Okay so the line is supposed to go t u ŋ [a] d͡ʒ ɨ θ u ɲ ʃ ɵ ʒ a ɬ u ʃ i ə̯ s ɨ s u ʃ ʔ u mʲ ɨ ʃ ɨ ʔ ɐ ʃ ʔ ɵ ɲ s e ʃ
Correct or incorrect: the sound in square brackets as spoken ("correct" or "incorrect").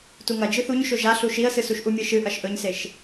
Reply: incorrect